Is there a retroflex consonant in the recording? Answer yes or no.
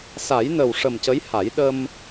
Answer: yes